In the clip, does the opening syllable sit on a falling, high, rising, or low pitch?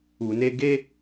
low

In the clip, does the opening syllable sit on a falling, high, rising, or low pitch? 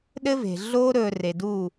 high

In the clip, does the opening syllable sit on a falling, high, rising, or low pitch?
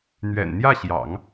low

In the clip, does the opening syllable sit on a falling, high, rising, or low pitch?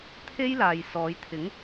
high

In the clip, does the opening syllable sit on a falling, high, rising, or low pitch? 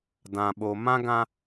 low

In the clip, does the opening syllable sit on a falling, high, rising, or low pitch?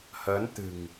rising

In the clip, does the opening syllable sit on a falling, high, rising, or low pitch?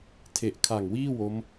low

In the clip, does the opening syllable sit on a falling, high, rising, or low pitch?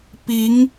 rising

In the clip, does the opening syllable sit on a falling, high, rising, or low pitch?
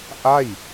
falling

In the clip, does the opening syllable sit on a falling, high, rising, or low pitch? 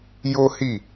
high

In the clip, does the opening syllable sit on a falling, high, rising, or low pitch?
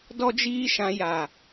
high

